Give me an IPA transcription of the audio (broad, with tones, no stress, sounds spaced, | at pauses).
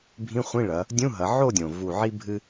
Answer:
bʱ ĩ˧˥˧ χʷ ĩ˧˥˧ ɭ ɐ˩˧ | dʲ ũ˧˥˧ ɦ ɐ˩˧ ʕ o˥˨ dʲ õ˩ v u˧˩ ʕ i˥ bʱ ɨ˥